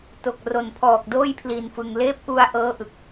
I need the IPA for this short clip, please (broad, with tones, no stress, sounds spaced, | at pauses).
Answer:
t o˨˩ k̚ r o˨˩ n pʰ ɔː˨˩ k̚ d oː˥˩ j pʰ l i˧ n f ɯ˧ ŋ l eː˦˥ p̚ ʔ u˧ a̯ ʔ ɤː˦˥ ʔ ɯ˨˩ k̚